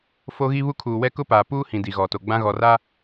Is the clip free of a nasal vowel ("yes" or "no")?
no